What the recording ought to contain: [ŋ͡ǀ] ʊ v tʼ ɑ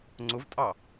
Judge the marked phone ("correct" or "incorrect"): correct